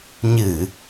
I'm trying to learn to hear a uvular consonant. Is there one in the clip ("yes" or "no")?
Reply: no